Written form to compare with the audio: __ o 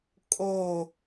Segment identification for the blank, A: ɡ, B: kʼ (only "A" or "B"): B